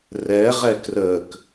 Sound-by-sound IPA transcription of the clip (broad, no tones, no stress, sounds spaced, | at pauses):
r ɛ ʁ ɛ k r ə k